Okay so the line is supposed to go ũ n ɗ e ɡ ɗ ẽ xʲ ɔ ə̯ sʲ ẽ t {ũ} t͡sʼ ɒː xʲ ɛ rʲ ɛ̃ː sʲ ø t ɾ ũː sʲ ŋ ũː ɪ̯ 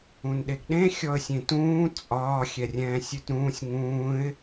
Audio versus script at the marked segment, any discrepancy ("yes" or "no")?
yes